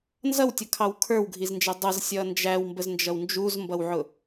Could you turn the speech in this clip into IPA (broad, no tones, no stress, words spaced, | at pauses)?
nzʌwtʲʌkʰɑw kʰə˞wɡʱiznd͡ʒɛ dˤʌzsʲʌ nd͡ʒæwmbəznd͡ʒʌw nd͡ʒuzmbʌwʕʊ